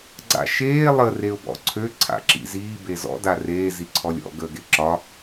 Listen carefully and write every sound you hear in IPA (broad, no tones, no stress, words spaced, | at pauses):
ɡ͡ǀa̰ʃeː lˠə reʊ̯bɔ̰ǀʰø ǀʰa̰ǁḭziː bezɔ̰ dareː ziǀʰɔlʲɔ̰ ɡəːɡeǁɒ